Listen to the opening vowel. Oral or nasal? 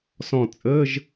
nasal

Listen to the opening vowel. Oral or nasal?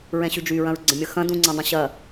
nasal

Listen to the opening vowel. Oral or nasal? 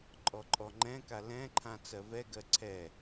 oral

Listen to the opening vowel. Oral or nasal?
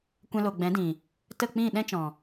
nasal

